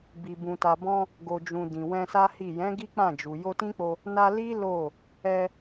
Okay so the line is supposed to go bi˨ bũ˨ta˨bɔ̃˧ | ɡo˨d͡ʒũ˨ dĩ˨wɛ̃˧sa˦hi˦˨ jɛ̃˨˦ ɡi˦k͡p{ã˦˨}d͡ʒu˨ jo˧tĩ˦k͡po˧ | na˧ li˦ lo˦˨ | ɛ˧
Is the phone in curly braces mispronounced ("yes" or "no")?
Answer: no